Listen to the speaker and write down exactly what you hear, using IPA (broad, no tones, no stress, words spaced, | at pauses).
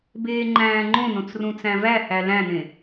beːŋ͡ǃæ̃ːŋ͡ǃõnõt͡s rũt͡sæ̃væhæ læ̃nẽ